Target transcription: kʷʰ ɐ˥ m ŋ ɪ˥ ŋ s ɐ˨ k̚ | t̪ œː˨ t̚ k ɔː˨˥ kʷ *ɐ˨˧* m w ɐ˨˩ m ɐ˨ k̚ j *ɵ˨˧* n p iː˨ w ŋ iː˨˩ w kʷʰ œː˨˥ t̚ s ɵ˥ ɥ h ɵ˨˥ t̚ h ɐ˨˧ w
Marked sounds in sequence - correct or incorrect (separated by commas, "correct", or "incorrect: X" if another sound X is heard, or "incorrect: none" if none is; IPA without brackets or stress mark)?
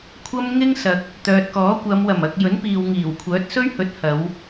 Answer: correct, incorrect: ɵ˨˥